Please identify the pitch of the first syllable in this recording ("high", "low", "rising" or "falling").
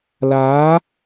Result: rising